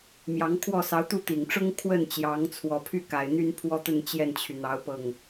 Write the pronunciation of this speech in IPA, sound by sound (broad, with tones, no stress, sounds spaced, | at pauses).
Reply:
m j ɑ˧˥ ŋ kʰ w ɔ˥˩ s ɑ˧˥ ʊ̯ t̪ u˥˩ t̪ i˨˩ ŋ ʈ͡ʂ ʊ˥ ŋ kʰ w ə˥˩ n t͡ɕ j ɑ˧˥ ŋ t͡sʰ w ɔ˨˩ pʰ y˥˩ k a˨˩ ɪ̯ n̪ y˥ n pʰ w ɔ˥˧ t̪ ə˥˧ n t͡ɕ j ɛ˥˩ n t͡ɕʰ y˩ n̪ ɑ˧˥ ʊ̯ p ɤ˥˩ ŋ